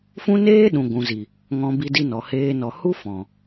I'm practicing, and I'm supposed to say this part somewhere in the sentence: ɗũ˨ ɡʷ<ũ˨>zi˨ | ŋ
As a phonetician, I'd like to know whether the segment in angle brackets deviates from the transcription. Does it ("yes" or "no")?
no